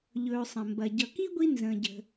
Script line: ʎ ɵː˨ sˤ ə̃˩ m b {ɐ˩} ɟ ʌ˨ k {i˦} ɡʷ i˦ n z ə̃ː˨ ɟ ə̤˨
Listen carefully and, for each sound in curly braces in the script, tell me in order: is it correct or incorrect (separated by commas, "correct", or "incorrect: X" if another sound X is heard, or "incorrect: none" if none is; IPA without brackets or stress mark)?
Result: correct, incorrect: i˥